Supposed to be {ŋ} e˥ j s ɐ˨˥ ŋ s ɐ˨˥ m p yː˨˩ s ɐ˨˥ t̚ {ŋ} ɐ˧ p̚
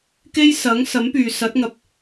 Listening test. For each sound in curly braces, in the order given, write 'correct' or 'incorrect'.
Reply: incorrect, correct

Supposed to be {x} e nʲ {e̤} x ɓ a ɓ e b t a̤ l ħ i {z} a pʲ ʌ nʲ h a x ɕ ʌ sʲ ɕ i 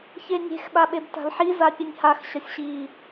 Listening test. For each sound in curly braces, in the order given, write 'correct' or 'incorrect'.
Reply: incorrect, correct, correct

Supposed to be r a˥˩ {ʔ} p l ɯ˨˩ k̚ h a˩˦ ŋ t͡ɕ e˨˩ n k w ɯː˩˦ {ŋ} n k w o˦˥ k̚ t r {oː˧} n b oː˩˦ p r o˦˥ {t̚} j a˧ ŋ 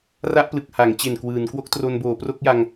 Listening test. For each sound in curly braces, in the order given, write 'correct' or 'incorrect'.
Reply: correct, incorrect, incorrect, incorrect

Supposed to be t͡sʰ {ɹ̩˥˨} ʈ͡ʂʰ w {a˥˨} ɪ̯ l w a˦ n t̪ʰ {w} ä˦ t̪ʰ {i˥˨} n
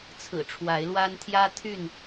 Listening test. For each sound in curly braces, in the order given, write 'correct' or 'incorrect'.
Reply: incorrect, incorrect, incorrect, incorrect

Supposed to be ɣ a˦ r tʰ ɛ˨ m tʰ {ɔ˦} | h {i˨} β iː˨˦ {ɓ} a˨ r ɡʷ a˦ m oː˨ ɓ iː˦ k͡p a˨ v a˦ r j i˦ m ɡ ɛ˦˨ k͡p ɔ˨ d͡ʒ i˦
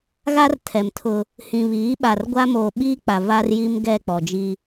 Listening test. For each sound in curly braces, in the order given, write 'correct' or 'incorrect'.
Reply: incorrect, incorrect, correct

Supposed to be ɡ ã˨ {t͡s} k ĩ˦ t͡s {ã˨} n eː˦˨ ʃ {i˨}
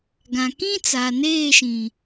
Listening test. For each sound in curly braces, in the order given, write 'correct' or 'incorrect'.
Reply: incorrect, incorrect, incorrect

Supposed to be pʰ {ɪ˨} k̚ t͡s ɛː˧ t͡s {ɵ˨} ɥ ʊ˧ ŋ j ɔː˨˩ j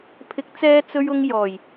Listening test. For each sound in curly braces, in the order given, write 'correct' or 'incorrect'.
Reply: incorrect, incorrect

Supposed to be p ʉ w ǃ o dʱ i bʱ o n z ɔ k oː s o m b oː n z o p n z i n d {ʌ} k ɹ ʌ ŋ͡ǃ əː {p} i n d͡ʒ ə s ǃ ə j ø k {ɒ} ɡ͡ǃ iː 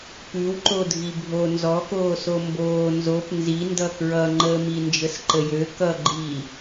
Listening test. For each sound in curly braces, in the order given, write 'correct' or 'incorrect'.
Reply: correct, incorrect, incorrect

